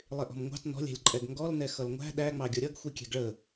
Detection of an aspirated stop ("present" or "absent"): absent